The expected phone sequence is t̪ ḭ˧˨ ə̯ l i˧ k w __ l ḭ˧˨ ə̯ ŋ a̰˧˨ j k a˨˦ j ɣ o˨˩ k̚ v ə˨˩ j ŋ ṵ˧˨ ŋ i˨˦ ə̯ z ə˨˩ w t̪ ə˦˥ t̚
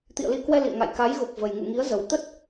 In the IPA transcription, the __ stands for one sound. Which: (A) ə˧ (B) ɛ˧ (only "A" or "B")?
B